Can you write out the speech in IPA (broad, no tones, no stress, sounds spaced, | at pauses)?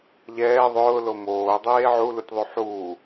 ʎ ɛː ðˤ ʊː l o m oː dˤ eː ʕ u l u tʲ ðˤ u ħ uː